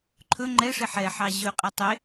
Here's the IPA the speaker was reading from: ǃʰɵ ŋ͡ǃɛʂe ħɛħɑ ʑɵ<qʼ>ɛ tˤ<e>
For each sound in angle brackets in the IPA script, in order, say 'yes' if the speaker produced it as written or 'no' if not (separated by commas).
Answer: yes, yes